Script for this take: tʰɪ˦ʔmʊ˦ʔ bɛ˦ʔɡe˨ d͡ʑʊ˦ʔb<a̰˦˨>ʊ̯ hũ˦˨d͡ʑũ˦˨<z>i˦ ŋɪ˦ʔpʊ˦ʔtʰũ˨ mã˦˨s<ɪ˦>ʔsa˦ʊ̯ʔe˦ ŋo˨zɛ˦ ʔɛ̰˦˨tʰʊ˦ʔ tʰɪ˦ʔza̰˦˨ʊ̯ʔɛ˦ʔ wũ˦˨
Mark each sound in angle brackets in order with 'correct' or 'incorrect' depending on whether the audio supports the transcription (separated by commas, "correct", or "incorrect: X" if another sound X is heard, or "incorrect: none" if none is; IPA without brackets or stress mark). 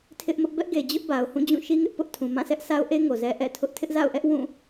incorrect: a˨, incorrect: ʃ, incorrect: ɛ˦